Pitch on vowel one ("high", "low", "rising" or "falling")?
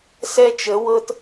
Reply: high